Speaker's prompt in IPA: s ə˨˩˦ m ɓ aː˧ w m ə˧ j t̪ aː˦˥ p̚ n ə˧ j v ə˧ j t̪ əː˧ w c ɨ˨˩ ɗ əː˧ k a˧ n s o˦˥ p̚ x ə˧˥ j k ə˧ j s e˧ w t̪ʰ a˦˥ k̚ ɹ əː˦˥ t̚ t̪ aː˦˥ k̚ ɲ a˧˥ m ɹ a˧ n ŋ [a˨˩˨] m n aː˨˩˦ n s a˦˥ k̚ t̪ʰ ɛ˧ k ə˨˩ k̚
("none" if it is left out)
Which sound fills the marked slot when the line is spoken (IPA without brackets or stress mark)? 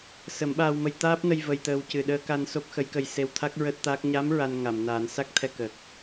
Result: a˨˩˨